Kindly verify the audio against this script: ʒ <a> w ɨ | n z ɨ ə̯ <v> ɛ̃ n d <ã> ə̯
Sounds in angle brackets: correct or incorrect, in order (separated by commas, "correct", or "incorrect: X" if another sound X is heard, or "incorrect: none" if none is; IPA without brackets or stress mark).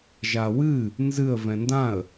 correct, correct, correct